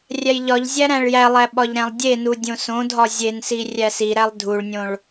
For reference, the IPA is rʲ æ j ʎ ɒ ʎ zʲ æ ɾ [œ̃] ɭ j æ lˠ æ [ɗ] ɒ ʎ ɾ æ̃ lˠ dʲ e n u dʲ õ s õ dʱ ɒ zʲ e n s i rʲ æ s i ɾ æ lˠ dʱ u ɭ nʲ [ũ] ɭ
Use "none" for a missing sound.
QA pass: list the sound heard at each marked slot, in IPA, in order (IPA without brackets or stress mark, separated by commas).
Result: æ̃, ɓ, õ